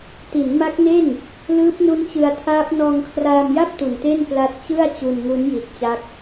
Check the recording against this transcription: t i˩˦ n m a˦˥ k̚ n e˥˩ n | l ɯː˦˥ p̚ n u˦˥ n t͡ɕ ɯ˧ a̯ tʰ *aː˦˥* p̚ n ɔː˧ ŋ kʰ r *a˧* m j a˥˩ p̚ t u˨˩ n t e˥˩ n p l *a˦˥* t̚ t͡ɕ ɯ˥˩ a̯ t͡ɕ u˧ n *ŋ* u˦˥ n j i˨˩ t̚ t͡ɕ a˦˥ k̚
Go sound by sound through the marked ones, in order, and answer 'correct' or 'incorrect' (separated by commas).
correct, incorrect, correct, correct